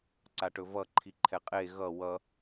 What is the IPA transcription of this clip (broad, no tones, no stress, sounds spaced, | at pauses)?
ǀ a ʈ ɵ v ʌ ǃʰ i ǃʰ ɛ qʼ e ɣ ʌ w ʌ